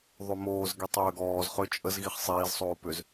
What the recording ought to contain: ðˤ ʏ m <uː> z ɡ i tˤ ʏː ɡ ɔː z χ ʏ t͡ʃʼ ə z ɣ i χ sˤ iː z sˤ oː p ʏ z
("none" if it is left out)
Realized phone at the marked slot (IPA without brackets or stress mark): oː